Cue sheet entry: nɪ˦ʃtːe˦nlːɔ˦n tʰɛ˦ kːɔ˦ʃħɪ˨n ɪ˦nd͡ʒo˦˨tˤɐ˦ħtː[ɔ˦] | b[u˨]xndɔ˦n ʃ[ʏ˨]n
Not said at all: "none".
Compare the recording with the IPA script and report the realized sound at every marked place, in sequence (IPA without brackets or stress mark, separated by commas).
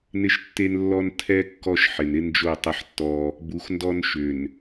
ɔ˦, u˨, ʏ˨